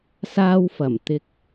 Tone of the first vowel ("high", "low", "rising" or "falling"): high